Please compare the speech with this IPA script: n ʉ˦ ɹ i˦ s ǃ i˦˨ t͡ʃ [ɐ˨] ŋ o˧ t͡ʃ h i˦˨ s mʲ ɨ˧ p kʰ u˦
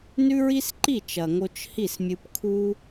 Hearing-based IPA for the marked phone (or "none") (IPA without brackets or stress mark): ɐ˨